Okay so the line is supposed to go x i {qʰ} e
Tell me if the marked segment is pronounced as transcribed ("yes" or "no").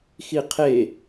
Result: yes